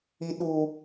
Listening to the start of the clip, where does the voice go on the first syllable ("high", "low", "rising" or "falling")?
low